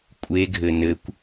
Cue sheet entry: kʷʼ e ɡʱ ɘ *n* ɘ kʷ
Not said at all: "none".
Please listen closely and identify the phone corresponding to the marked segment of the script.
n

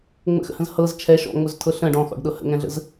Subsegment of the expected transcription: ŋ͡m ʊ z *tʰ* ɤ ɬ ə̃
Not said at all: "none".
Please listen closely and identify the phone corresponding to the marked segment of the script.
tʰ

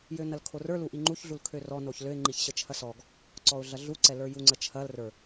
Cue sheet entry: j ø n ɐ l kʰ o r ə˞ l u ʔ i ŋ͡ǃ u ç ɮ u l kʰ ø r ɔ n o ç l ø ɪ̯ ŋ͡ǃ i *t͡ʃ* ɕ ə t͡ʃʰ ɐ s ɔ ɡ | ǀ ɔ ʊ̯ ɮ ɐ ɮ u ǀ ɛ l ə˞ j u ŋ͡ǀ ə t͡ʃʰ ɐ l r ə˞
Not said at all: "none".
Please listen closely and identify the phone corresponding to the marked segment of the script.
ç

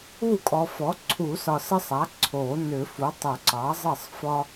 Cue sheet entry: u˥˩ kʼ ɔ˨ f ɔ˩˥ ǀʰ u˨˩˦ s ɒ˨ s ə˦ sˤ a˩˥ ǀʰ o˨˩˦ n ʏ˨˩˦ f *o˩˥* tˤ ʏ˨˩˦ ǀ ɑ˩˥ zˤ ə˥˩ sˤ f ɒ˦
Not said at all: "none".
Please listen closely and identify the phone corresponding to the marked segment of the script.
u˩˥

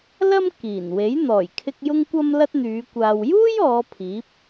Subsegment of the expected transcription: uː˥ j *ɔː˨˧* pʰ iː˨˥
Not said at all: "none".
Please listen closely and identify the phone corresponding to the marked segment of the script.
ɔː˨˧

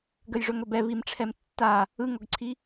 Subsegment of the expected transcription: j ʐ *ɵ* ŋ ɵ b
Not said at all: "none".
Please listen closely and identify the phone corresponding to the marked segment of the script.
ɵ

